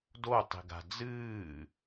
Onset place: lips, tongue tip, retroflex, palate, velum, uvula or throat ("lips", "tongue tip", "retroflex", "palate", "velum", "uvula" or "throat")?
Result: tongue tip